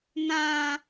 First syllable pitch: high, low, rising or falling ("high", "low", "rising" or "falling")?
high